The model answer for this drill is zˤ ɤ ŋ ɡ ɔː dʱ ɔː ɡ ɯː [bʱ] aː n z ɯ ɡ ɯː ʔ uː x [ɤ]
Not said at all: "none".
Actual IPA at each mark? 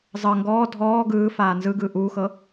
f, ɤ

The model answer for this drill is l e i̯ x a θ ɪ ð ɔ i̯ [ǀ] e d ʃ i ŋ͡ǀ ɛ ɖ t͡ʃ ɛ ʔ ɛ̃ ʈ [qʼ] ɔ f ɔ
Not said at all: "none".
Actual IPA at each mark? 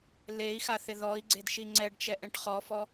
ɡ͡ǀ, χ

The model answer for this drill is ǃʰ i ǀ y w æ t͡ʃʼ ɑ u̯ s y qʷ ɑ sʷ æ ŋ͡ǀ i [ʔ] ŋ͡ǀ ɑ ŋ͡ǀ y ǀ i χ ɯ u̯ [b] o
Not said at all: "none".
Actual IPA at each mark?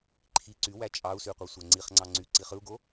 χ, ɡ

